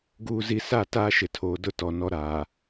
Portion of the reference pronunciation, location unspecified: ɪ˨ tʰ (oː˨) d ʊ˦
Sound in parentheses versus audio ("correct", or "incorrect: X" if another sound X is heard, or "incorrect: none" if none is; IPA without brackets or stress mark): correct